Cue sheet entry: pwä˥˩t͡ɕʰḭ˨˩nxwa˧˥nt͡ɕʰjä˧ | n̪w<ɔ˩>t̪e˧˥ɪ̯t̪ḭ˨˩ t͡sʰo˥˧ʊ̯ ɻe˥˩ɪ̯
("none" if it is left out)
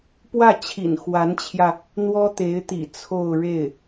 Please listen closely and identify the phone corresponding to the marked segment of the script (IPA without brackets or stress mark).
ɔ˥